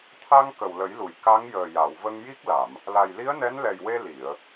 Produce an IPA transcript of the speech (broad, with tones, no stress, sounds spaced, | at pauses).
t̪ʰ a˧ ŋ k ə˨˩ w l ə˨˩˦ j l u˨˩˨ j k a˧˥ ŋ j əː˨˩ j a˨˩˨ w v ə˧ ŋ j i˦˥ k̚ l a˨˩˨ m | l a˨˩ j l i˧˥ ə̯ n ɛ˧˥ n l ɛ˨˩ j w e˧ l i˨˩˨ ə̯